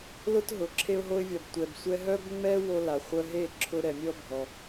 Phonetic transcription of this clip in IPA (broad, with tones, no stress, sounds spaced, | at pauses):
l ʊ˦ t ɦ ʊ˨˦ ǁʰ e˧ ʊ̯ ɦ o˧ ɪ̯ vʲ ɒ˨ b tʷ ɛ˨ b sʷ ɛ˧ ɦ œ˦ b ŋ͡m ɛ˦ w o˧ l a˨ χʷ œ˧ ɦ e˦˨ ǁʰ ʊ˧ ɾ ɛ˨ mʲ ɔ˦ bʱ ɔ˧